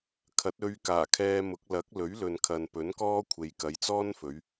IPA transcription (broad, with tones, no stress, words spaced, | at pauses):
kʰɐ˨˥t̚ ɵ˧ɥ kaː˨˩kʰɛː˧mʊ˨˥k̚ lɐ˨˥k̚lɵ˨˥ɥ lɵ˨nkʰɐ˨npɵ˨˥nkɔː˥ kʷʰe˨jkɐ˨˧jt͡sɔː˥nfɵ˨˧ɥ